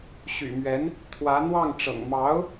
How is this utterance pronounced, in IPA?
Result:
ɕ y̰˨˩ m ɥ ɛ˧˥ n | t̪ʰ w ä˧˥ n̪ w ɑ˥˩ ŋ ʈ͡ʂ ɤ̰˨˩ ŋ m ɑ˧˥ ʊ̯

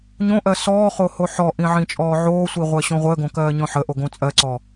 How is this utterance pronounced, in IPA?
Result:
ɲ õ ʔ ɜ s ɔː χ o h o ħ ɔ ʔ ĩ ʕ ĩ t͡ʃʼ ɔː ʕ oː sʷ i ʁʷ ɜ ɕ õ ʁʷ əː ɡ õ k ɜː ɲ ɔ̃ ħ ə ʔ o ɡ õ t͡sʼ ɜ ǀ ɔ

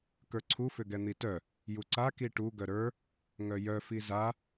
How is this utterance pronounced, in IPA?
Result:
k ə˞ ǀʰ u f ʏ ɡ ɛ n̪ i t œ | j u ǀ a k i ʈ u ɡ œ ɾ ə˞ | ŋ œ j œ f i z a

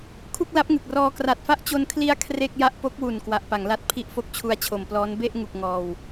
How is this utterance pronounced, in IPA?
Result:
kʰ u˥˩ k̚ l a˦˥ p̚ ŋ ɯ˨˩ k̚ r ɔː˧ k r a˨˩ t̚ f a˦˥ ʔ t͡ɕ o˧ n kʰ l i˦˥ a̯ kʰ r e˥˩ k̚ j a˥˩ ʔ p o˦˥ k̚ w u˨˩ n k w a˨˩ ʔ p a˩˦ ŋ l a˦˥ t̚ pʰ i˥˩ ʔ f o˦˥ k̚ t͡ɕʰ u˧ a̯ t͡ɕʰ o˨˩ m p l ɔː˦˥ n b e˥˩ ʔ ŋ u˨˩ k̚ ŋ ɔː˧ w

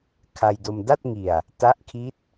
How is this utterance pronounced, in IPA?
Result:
kʰ a˧ j d o˧ m d a˥˩ t̚ ŋ i˨˩ a̯ | t a˦˥ ʔ kʰ i˦˥ t̚

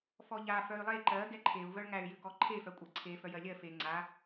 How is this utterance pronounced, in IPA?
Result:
f ɔ ʎ a f œ y̯ lˠ e ǃ ɜ ɡ ɛ ǃʰ e u̯ v œ ɭ ŋ æ y̯ j ʏ k ɔ ǃʰ e f œ kʷʼ ɜ ǀʰ e f œ j ɜ lʲ ɜ f e ŋ͡ǀ a

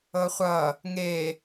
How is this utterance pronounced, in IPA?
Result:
ɤ χʷ ʌ | ŋ e

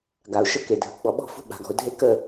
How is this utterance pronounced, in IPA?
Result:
ɡ a˨ ʊ̯ ʃ ə˦ k e˨ dʱ ə˨ ɡ͡b ɔ˨ ɓ ɔ̤˦˨ f ṳ˦ ɓ a̤˨ ɡ ɔ̤˨ ʊ̯ dʱ e˦ k ə˦˨

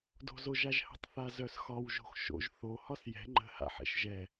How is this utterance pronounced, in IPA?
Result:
d o̤ z o ʒ a ʒ h ə̤ tˤ θ a z œ s x ɒ w ʒ o̤ x ʃ o̰ ʒ θ o h ɒ s j ɛ̤ ŋ͡ǃ ə̤ h a̰ ħ ɛ̰ ʃ ʒ ɛ

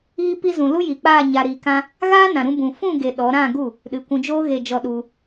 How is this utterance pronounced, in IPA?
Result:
iː˧ p i˧ z ũ˨ l u˦ j i˨ k͡p aː˦˨ ɲ a˧ ɾ iː˧ k ã˦ | ɣ aː˦ n ã˨ ɾ ũ˧ b ũ˨ f ũ˦˨ ɡ e˨ ɗ ɔ˨˦ ɾ ã˦˨ ɡ u˦˨ | ɗ ɨ˨ kʷ ũ˧ d͡ʒ oː˦ ɣ e˧ d͡ʒ ɔ˧ ɗ u˧

